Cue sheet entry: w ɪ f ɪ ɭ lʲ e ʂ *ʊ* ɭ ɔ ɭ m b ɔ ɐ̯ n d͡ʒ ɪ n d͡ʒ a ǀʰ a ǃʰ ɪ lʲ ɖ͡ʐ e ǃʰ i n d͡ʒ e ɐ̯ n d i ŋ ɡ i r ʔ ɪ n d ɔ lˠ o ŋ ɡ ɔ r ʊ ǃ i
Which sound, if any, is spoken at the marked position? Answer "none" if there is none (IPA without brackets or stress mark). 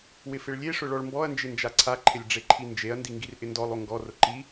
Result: ʊ